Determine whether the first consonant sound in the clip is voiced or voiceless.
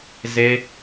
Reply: voiced